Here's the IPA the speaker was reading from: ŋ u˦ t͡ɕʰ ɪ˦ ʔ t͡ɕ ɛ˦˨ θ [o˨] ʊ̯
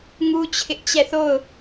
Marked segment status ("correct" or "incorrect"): incorrect